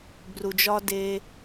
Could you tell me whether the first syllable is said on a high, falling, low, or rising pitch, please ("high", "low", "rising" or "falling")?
low